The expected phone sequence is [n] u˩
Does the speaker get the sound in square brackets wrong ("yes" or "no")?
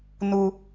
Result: no